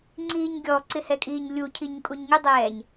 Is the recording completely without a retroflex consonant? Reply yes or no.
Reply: yes